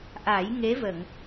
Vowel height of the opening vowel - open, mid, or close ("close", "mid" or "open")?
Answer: open